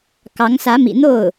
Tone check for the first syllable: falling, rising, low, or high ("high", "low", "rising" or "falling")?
rising